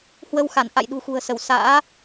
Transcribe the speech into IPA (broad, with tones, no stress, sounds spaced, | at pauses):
h w ə˧ w x a˧˩ n ʔ a̰˧˨ j ɗ ṳ˨˩ x ṳ˨˩ ə̯ s ə˧˩ w s a̰ː˧˥